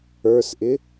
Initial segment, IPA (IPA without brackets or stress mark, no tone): ə˞